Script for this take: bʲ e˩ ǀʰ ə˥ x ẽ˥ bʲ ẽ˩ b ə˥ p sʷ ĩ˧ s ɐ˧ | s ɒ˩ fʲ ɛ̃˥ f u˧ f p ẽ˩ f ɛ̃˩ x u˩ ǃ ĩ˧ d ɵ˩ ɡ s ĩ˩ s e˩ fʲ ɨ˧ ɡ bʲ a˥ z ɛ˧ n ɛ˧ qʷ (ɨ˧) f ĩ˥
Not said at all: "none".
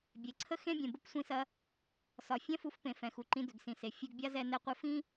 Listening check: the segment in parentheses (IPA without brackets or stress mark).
ɨ˧